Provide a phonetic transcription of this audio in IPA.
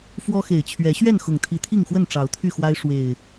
f w ɔ˦ x e˨˩ ɪ̯ t͡ɕʰ ɥ ɛ˨˦ ɕ ɥ ɛ˥˨ n x ʊ˨˩ ŋ t̪ʰ i˨˦ t̪ʰ i˥˨ ŋ x w ə˥˨ n ʈ͡ʂ ɑ˨˦ ʊ̯ t̪ʰ y˥˨ x w a˦ ɪ̯ ʂ w e˨˩ ɪ̯

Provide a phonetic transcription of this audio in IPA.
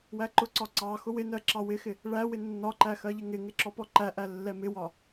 w æ ǃ ʊ ǀ ɒ ǀ ɑ x ʊ w ɪ n ɜ ǁ ɑ w ɪ x ɪ | ɭ æ w ɪ nː ɒ ǃ æ x ɜ ʎ ɪ ŋ ɪ ŋ ɪ ǁ ɔ p ɔ ǃ æ ʔ æ lː ɛ m ɪ w ɒ

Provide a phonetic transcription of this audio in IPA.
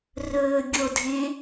r ɵː ɡʲ o dʱ ẽ

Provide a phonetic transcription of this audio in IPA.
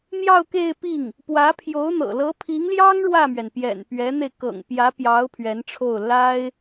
n̪ j ɑ˥˧ ʊ̯ k e˥˧ ɪ̯ p i˥˩ ŋ | p w ä˧˥ pʰ j o˧˥ ʊ̯ n̪ ɤ̰˨˩ l ɤ˧˥ pʰ i˧˥ ŋ l j ɑ˥ ŋ ɻ w ä˥˩ m ɥ ɛ˩ n p j ɛ̰˨˩ n p ɥ ɛ˧˥ n̪ e˧ ɪ̯ k ɤ̰˨˩ ŋ p j ä˧˥ p j ɑ˧˥ ʊ̯ pʰ ɥ ɛ˧˥ n ʈ͡ʂʰ o˥˩ ʊ̯ l a˥ ɪ̯

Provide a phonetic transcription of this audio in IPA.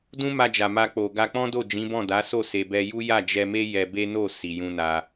d ũ˦ m a˧ d͡ʒ a˨ m a˧ k͡p o˨ ɡ a˧ k͡p ɔ̃˦ d o˦˨ d͡ʒ ĩ˨˦ b ɔ̃˦˨ d a˨˦ s o˦˨ s e˨ b ɛ˧ j u˦ j a˦˨ d͡ʒ ɛ˧ m e˦ j ɛ˧ b e˦ n o˦˨ s i˨ j ũ˧ n a˧

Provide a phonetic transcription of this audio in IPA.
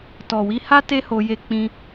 t ɔ˨ w i˧ h a˦ t e˦ h o˧ j e˧ k͡p ĩ˧

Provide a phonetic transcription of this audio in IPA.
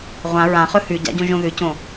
ʁʷ ã ɹ ã χ ɵ h ʉ ɟ a̰ ɟ õ ʒ õ ð ʉ c õ

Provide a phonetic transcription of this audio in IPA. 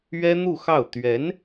ɥ ɛ˥ n̪ u˥˧ x ɑ˥˩ ʊ̯ t̪ ɥ ɛ˧˥ n

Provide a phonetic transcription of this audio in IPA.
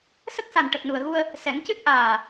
s ə˦˥ k̚ s a˨˩ n ʈ ə˨˩ k̚ n u˨˩ ə̯ ɣ u˧ ə̯ | s ɛ˨˩˦ ŋ c ɨ˦˥ t̚ ʔ aː˨˩

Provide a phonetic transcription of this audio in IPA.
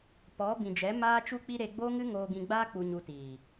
p ɔ˨˦ b ĩ˨ d͡ʒ ɛ˨˦ m aː˦ t͡ʃ u˦ k͡p i˦ ɾ e˧ ɡ͡b o˦ ŋ ɨ˦ ŋ oː˧ ɡ ĩ˧ ɡ͡b aː˦ k͡p u˧ ɲ u˧ t iː˨

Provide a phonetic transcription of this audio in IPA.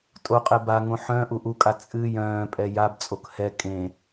tʼ o qʼ ɛ b a ŋ õ ħ œ̃ ʔ u ʔ u kʼ a t͡sʼ ɨ j œ̃ː pʼ ɛ j a b t͡sʼ o k h ɛ kʼ ẽ

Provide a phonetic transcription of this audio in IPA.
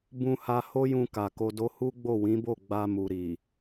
b ũ˧ h a˧ h o˦ j ũ˧ k a˨ k o˧ d o˦ h u˦ ɡ͡b o˦˨ w ĩ˨˦ b o˦˨ ɡ͡b a˧ m u˨ ɾ i˨

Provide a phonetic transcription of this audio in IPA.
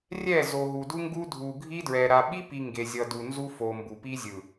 rʲ ɛ˦˨ z o˨ ɦ u˨ d u˦ ŋ ɡ u˦ dʱ u˨ ɡʱ i˦ d ɹ ɛ˨ ɾ a˨ ɓ i˦ p i˨ ŋ ɡ e˨ zʲ ʌ˨ d u˨ n z u˦ f o˨ m b u˨ p i˦ zʲ ɯ˨

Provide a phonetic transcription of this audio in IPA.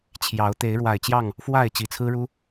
t͡ɕʰ j ɑ˨˦ ʊ̯ t̪ e˨˦ ɪ̯ ɻ w a˨˩ ɪ̯ t͡ɕ j ɑ˥˨ ŋ | f w a˥˨ ɪ̯ t͡ɕ i˨˩ t͡sʰ ɹ̩˦ ɻ u˦

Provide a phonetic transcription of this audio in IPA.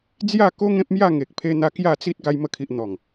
d͡z j a˥˧ k o˦ ŋ ẽ˦ p̚ m j a˥˧ ŋ e˨ k̚ pʰ e˧ n̪ a˧ k j a˥˧ t͡s i˦ t̚ ɡ a˧ j m ə˧ kʰ i˨ ʔ n̪ ɔ˨˩ ŋ

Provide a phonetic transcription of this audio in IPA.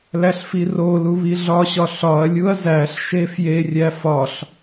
l æ ɬ f i r o l u β i ɮ ɒ ɕ ɒ ɬ ɒ ɐ̯ lʲ u ɐ̯ z æ ɬ ʃ e f j e rʲ æ f ɒ ɬ

